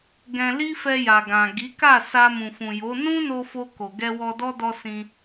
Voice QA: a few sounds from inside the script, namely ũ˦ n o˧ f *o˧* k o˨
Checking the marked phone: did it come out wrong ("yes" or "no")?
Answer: no